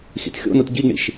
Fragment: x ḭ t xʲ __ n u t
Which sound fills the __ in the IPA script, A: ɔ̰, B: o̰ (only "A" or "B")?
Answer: B